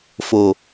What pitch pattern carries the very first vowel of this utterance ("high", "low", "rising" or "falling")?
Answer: low